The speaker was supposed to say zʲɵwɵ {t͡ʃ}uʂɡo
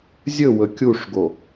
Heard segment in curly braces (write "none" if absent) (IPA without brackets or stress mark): kʲ